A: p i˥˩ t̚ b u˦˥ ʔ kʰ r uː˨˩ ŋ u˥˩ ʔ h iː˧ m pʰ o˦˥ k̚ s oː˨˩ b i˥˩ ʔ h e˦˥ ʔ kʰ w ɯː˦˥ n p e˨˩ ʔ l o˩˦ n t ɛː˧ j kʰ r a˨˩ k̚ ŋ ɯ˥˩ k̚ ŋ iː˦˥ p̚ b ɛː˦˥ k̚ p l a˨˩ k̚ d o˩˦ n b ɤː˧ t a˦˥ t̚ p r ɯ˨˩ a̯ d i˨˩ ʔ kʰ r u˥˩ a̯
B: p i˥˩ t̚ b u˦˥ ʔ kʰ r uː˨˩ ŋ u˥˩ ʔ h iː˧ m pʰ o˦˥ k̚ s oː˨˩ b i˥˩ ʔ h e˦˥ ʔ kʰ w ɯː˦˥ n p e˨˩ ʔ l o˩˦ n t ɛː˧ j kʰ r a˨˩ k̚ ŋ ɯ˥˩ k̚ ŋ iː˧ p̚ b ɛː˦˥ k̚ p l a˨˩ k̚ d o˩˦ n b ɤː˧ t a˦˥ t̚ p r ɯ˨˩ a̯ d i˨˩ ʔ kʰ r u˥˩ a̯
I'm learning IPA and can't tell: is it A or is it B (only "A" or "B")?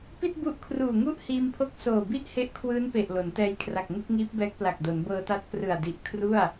A